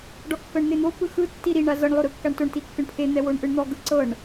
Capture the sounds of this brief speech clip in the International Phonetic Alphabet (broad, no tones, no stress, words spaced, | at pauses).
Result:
ɖɔkːɤɳn̪en̪o pɯxɯ tːiɾiɳ azɤɳ lˠoɾɯkːaɳtoɳ tikːɯɳpʰe n̪ɛwoɳʔɯɳn̪ɔ ɡɯǀɤɳ